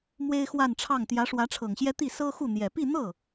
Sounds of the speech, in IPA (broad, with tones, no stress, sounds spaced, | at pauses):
m w e˥ ɪ̯ x w a˥˧ n ʈ͡ʂʰ ɑ˥˩ ŋ t̪ j ä˧˥ ʂ w ä˧˥ ʈ͡ʂʰ ɤ˨˩ ŋ ɕ j ɛ˥ t̪ i˥˩ s ɤ˥ x u˥˩ n̪ j ɛ˨˩ p i˥˧ n̪ ɤ˥˩